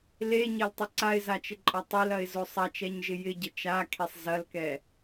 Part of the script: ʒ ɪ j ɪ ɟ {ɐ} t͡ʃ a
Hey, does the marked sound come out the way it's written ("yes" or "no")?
no